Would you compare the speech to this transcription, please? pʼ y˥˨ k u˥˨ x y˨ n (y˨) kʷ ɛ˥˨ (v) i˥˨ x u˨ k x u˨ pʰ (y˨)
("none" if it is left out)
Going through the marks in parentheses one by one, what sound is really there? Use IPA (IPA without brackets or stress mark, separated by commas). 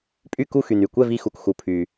y˨, v, y˨